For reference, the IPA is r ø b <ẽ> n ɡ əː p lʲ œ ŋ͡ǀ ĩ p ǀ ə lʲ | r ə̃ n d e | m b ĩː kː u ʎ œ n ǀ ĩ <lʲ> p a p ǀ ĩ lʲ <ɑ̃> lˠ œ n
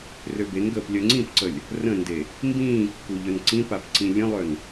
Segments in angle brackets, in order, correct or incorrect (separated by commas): incorrect, incorrect, incorrect